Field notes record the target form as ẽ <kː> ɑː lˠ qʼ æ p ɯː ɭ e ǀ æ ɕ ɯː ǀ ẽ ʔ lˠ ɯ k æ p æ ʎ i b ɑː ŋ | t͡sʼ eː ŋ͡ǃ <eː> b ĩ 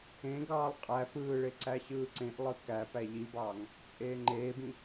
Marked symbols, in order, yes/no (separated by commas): no, yes